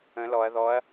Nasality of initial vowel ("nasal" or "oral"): nasal